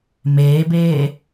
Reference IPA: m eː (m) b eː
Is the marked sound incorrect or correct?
incorrect